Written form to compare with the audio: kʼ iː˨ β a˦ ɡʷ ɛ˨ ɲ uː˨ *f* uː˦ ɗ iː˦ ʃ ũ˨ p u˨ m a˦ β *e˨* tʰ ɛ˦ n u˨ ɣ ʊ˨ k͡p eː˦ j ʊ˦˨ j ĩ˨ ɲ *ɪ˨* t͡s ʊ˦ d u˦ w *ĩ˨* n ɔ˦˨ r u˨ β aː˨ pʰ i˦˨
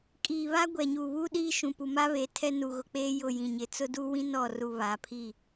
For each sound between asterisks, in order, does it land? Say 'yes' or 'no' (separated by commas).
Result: no, yes, yes, no